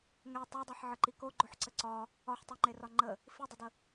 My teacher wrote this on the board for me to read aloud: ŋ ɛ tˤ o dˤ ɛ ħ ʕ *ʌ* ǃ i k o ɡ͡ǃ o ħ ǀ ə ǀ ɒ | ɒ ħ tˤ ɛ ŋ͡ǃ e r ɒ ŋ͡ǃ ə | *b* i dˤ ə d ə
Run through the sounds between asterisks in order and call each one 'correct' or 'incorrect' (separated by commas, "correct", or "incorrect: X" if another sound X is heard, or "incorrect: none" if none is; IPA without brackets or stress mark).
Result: incorrect: ə, incorrect: f